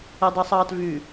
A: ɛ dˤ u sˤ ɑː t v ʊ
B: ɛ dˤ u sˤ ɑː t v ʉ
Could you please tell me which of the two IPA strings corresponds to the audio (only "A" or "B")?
B